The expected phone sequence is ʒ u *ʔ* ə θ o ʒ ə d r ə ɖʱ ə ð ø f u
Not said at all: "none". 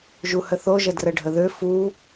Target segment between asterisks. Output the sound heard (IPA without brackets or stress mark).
h